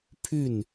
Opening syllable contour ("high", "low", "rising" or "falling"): falling